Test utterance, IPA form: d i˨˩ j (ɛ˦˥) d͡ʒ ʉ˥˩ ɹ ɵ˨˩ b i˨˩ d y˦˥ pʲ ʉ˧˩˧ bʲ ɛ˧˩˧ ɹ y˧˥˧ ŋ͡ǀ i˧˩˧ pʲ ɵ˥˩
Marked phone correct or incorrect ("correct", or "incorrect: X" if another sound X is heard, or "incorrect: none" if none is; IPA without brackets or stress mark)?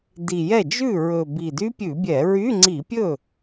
incorrect: ɛ˥˩